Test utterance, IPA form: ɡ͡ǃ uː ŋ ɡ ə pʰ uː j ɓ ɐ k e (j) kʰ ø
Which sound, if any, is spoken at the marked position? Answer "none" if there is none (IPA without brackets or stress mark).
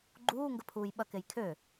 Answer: j